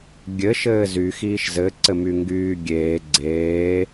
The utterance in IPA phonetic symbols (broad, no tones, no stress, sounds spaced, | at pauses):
ɡʲ ɘ ʃ ɘː z y x iː ʃ z ɘ ǀ ɘ m y ŋ ɡ yː ɡʲ eː ɡ͡ǀ eː